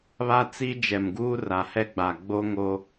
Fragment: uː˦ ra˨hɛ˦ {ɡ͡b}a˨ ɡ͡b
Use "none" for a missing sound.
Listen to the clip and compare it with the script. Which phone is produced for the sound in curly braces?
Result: ɡ͡b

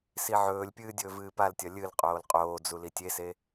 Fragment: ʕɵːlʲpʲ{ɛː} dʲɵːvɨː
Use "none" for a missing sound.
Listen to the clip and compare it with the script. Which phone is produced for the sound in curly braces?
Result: ɨː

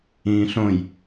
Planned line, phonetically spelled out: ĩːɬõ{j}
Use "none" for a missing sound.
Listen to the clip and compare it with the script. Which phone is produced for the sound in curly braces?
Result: j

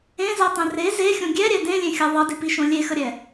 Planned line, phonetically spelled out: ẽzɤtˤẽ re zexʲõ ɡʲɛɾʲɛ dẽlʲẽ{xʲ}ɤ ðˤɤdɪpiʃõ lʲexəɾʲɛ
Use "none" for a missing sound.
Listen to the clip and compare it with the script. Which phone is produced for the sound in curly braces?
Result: xʲ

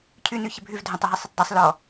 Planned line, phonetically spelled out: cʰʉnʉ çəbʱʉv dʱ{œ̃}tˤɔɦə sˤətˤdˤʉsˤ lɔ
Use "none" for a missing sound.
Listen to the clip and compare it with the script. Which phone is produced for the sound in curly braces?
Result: œ̃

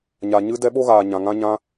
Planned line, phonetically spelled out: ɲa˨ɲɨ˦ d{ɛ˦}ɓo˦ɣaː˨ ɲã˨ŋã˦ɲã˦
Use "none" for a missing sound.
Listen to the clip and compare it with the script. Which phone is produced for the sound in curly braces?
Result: ɛ˦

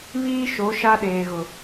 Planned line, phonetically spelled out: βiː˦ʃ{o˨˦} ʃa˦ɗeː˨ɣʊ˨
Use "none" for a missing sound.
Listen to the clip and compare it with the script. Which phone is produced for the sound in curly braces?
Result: o˨˦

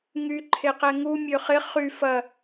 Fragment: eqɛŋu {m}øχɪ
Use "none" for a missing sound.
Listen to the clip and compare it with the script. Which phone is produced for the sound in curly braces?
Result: mʲ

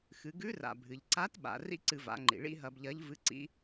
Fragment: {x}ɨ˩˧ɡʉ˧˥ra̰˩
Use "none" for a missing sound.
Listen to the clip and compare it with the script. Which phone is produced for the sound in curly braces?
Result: x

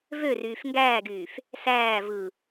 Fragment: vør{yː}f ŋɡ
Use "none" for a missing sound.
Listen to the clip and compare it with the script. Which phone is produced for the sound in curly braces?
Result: yː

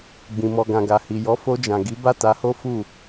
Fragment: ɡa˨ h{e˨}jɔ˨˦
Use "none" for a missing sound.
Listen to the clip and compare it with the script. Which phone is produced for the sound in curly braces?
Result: i˨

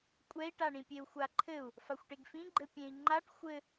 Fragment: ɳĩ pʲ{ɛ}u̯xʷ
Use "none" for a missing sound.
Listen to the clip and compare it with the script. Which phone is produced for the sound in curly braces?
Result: e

